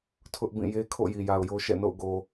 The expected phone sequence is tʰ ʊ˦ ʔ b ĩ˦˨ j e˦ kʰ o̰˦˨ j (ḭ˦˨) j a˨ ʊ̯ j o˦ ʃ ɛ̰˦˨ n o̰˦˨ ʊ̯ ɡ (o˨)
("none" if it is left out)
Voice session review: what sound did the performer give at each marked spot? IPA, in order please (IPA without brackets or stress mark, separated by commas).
i˨, o˨